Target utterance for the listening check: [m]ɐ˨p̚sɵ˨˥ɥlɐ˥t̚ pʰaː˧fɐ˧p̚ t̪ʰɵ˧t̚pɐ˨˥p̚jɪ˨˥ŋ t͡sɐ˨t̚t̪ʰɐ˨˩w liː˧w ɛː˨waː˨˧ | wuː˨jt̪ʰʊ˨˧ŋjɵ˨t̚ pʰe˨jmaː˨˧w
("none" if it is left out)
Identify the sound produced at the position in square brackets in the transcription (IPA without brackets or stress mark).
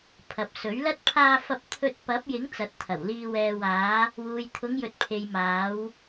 pʰ